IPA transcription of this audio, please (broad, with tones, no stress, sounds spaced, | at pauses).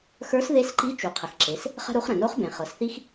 x ə˞˧˥ s ð e˧˥ s ǃ i˧˥ t͡ʃ u˩ qʰ ə˩ x ǁ e˩˧ s | χ ə̤˥ ɾ u˧˥ χ ɾ ə̃˩ n o˧˥ χ b ẽ˩ χ ɤ˩˧ s θ i˥ x